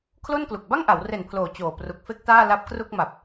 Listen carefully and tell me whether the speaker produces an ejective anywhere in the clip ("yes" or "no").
no